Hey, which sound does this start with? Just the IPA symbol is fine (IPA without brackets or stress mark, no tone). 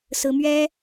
s